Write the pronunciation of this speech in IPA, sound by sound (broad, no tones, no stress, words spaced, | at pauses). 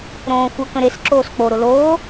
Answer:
ɾõːxʷə kə̃ɾes ǁoːsk͡po ɾʊloː